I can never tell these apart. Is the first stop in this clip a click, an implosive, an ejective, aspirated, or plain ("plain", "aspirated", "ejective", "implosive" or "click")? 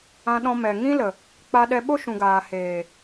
implosive